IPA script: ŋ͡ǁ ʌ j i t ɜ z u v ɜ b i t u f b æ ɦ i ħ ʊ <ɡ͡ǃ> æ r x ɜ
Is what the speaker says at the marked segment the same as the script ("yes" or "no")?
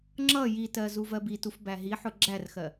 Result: no